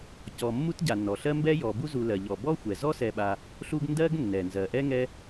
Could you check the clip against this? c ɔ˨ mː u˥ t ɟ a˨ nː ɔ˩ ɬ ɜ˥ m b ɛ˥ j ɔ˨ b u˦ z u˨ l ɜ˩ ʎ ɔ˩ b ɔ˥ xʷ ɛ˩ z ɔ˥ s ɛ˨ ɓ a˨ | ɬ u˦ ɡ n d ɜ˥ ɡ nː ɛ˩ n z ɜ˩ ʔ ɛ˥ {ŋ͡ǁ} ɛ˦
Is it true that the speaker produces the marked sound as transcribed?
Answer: no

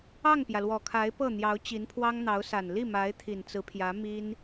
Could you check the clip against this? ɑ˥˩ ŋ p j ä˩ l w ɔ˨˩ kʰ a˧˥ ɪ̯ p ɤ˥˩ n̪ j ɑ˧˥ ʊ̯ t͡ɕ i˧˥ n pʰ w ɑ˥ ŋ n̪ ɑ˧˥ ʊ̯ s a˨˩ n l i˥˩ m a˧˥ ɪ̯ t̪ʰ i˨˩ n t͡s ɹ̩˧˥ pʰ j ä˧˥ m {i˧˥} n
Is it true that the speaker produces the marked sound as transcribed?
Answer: no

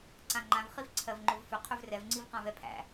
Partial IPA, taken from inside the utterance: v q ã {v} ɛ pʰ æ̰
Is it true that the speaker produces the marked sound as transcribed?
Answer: yes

